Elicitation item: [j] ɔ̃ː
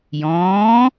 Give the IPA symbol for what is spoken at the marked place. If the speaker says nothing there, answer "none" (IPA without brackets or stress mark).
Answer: j